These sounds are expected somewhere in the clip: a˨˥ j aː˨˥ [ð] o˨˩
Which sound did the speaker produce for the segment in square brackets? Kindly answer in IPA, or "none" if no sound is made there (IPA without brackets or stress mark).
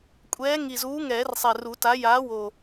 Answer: w